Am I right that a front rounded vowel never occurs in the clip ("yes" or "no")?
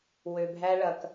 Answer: no